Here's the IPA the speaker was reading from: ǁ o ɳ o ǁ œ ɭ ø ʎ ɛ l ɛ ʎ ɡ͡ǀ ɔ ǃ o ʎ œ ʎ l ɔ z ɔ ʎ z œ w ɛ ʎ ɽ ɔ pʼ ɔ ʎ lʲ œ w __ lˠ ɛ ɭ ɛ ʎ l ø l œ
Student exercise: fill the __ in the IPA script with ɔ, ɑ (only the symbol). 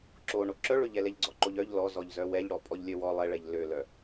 ɔ